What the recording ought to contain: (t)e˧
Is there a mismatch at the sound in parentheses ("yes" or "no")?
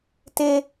no